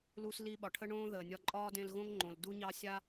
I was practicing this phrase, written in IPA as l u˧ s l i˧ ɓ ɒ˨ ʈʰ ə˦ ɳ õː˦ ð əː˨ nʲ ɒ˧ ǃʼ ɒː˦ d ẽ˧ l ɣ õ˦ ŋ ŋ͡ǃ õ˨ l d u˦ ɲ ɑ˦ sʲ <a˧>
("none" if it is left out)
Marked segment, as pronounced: a˦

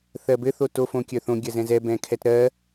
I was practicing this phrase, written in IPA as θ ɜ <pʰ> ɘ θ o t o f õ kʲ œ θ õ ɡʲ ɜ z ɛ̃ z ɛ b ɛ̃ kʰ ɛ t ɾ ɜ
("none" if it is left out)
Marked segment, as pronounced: b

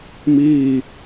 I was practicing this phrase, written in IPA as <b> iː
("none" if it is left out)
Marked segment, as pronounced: m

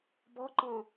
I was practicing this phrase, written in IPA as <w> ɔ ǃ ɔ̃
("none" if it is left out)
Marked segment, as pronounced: b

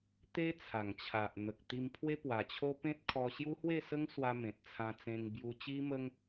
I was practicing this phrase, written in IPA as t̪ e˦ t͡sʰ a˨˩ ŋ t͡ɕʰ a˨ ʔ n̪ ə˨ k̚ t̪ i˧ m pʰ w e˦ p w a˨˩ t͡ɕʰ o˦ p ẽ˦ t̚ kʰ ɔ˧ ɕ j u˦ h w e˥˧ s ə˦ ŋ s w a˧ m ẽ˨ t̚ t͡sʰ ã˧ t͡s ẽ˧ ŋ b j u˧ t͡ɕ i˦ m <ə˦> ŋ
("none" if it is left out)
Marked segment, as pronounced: ə˦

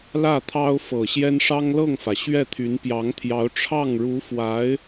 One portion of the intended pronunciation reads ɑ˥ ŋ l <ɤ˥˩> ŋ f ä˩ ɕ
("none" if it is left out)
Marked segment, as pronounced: ɤ˥˩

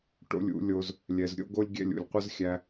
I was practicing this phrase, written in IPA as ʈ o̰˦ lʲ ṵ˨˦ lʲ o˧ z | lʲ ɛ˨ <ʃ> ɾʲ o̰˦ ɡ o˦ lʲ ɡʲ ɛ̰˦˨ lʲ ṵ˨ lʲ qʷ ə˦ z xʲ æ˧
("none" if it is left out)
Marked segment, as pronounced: z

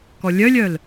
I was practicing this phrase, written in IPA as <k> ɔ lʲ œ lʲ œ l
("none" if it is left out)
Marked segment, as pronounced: k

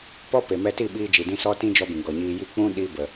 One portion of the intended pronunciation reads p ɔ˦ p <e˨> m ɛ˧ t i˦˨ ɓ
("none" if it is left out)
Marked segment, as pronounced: e˨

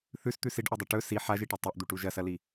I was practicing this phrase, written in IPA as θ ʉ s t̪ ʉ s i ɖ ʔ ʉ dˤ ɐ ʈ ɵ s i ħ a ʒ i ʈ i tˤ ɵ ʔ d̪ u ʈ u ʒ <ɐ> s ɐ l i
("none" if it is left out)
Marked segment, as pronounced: ɐ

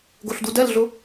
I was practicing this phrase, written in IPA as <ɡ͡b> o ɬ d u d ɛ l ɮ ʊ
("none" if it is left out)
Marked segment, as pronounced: ɡ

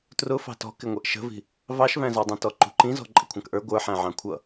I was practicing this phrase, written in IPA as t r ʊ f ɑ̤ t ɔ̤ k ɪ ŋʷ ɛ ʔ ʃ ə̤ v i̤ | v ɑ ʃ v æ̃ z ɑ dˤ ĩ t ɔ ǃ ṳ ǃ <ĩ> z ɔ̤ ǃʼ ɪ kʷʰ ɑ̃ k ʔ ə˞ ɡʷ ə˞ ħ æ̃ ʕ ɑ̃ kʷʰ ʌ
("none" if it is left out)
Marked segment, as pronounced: ĩ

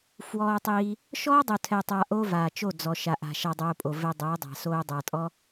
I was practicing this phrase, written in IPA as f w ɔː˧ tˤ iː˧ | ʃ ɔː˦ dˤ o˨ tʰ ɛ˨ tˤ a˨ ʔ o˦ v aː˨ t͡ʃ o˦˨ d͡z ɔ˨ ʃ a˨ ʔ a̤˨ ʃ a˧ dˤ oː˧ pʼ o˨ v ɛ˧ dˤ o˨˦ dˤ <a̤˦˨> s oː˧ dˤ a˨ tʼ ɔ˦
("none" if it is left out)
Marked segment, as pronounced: a̤˨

